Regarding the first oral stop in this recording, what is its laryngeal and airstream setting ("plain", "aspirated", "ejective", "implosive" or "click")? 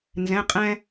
ejective